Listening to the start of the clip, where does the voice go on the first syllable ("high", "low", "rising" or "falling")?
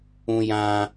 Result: high